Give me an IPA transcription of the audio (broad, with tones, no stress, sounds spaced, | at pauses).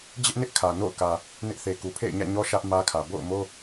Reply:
d͡ʑ ɪ˦ ʔ n ɪ˦ ʔ kʰ ä˨ n o̰˦˨ ʊ̯ k ä˨ | n ɪ˦ ʔ θ e˨ k u˨ pʰ ḛ˦˨ ɪ̯ ɲ ä̰˦˨ ɲ ɔ˦ ʃ ä˦ ʔ m ä˦ kʰ ä˨ b o̰˦˨ ʊ̯ m o˦